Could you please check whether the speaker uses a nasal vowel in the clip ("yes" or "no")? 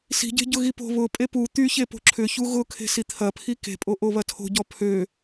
no